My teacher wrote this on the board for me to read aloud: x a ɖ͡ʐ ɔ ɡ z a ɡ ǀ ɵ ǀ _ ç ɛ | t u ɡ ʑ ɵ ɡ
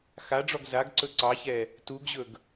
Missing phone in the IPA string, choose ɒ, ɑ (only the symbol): ɑ